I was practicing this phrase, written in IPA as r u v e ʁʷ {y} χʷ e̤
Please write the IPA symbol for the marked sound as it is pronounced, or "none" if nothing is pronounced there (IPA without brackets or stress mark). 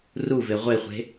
e